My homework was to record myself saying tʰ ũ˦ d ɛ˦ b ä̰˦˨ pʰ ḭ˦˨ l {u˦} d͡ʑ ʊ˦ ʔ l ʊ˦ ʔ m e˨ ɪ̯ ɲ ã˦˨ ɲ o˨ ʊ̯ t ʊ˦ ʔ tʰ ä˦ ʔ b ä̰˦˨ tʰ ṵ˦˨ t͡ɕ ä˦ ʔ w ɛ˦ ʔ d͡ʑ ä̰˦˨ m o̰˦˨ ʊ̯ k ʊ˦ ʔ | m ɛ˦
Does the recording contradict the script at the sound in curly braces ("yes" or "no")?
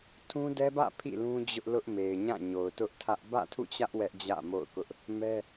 yes